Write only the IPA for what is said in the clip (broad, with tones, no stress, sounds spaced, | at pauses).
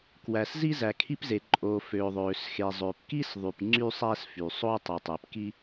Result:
k w æ˩ s z i˥ z æ˩ kʰ i˥ p z e˩ ǃʼ oː˩ f øː˩ ðˤ øː˩ s x e˩ zˤ øː˩ p k i˥ s ðˤ y˩ p ŋ͡ǀ y˥ sˤ æ˥ s f y˩ sˤ oː˥ tˤ i˩ tˤ e˩ p k i˥